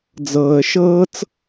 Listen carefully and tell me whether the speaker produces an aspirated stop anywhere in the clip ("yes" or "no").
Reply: no